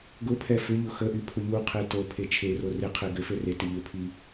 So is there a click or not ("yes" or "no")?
no